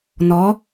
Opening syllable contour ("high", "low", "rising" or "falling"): rising